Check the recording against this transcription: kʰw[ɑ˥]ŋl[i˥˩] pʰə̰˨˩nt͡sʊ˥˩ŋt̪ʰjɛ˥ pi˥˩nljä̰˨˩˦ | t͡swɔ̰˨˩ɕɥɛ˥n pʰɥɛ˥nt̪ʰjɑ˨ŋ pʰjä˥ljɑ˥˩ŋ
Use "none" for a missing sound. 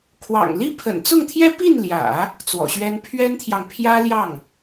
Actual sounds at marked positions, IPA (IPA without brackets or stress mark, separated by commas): ɑ̰˨˩, i˥